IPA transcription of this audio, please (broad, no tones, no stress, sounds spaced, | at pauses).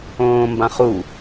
õː m b ã χ u